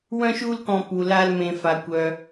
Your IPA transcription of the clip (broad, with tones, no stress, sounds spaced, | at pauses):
w œ̃˦ ʃ u˦ l k ɔ̃˧ p u˧ l a˦ l m ẽ˧ f a˧ kʷ œ˧